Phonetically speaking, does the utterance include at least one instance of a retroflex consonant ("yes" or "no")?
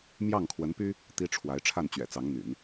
yes